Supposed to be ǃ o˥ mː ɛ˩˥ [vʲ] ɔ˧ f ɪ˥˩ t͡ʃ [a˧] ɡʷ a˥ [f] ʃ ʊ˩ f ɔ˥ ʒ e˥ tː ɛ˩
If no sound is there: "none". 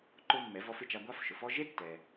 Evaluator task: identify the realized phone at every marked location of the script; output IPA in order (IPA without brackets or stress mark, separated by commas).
v, a˧, f